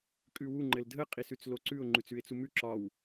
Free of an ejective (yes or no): no